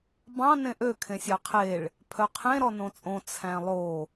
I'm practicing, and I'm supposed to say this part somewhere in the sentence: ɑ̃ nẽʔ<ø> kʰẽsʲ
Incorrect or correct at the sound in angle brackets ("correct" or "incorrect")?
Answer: correct